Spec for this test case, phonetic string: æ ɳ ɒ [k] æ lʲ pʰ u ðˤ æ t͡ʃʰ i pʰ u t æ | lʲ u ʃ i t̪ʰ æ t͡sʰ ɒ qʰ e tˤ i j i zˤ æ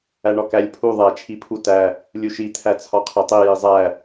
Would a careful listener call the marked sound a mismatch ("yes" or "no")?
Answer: no